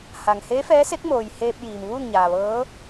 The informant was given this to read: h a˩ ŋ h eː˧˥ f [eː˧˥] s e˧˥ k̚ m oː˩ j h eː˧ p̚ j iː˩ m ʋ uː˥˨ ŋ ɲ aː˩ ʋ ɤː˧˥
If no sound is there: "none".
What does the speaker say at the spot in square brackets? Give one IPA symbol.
ɛː˧˥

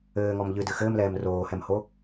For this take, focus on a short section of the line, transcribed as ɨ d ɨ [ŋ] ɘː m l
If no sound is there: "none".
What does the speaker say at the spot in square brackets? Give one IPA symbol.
x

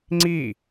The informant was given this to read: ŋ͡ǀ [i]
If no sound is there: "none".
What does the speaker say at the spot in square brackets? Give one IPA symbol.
i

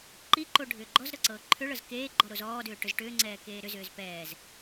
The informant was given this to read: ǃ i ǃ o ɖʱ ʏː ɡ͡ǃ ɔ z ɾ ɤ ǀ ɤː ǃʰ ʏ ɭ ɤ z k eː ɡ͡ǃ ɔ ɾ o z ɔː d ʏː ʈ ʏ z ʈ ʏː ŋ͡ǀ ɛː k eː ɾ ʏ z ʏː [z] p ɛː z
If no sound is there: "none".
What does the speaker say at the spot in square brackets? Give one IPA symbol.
z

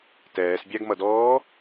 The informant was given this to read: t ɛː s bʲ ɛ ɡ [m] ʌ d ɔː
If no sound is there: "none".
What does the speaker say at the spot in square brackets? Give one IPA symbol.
m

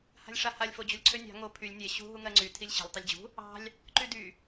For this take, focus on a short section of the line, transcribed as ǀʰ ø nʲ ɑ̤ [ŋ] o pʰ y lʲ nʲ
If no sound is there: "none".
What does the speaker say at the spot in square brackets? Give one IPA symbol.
ŋ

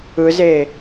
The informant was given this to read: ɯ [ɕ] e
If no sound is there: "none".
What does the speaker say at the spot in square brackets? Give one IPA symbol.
z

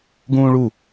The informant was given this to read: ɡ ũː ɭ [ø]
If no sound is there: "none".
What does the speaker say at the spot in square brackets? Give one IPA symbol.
u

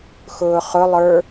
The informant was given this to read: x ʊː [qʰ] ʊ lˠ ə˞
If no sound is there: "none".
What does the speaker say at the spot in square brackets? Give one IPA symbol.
χ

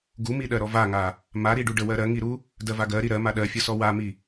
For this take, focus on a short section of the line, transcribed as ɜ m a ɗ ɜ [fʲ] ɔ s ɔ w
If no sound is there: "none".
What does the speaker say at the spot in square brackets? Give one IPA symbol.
fʲ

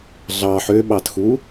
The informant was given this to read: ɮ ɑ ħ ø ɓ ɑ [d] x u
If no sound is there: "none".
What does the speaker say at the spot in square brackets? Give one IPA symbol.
t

